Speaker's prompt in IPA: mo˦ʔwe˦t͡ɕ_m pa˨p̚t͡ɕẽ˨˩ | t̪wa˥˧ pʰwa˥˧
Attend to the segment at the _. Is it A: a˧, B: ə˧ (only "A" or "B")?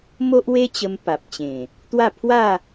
B